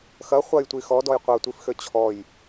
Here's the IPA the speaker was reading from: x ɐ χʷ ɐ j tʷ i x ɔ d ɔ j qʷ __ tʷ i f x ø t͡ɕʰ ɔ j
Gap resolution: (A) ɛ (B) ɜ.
B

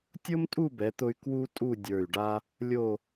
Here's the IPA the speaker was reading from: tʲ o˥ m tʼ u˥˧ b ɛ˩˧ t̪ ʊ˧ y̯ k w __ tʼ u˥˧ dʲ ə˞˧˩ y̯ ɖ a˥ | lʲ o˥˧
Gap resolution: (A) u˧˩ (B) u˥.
B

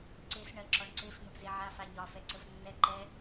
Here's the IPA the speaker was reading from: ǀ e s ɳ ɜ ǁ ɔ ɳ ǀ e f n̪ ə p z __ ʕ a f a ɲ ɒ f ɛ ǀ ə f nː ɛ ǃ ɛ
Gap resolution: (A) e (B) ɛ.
A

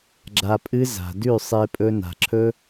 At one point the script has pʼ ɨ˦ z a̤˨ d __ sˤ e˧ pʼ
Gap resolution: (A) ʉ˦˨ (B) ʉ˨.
A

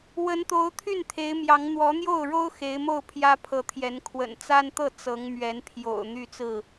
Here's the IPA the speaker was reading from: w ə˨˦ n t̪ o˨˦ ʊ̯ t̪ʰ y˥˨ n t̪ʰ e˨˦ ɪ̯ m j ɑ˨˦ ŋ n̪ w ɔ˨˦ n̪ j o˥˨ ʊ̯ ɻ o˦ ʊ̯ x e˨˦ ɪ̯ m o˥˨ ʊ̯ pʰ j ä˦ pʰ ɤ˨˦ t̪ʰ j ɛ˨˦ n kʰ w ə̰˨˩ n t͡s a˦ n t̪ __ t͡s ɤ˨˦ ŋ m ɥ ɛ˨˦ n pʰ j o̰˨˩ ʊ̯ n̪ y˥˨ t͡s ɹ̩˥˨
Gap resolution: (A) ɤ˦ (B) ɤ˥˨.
B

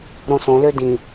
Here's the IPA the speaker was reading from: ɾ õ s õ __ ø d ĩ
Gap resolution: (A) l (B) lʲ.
A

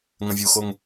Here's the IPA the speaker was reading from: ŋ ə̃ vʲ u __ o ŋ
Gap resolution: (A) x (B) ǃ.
A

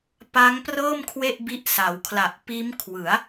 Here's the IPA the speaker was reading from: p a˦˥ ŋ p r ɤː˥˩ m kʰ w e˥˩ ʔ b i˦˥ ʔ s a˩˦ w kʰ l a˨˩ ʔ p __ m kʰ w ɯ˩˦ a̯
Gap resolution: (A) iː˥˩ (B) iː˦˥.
B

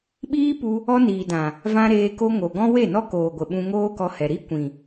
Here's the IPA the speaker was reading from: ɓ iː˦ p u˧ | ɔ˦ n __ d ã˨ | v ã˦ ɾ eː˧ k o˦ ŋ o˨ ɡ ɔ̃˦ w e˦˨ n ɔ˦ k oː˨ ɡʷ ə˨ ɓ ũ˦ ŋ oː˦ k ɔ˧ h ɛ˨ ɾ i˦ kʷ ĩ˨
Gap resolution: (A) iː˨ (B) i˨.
A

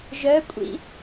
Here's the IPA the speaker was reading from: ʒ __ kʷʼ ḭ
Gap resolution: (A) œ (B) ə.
A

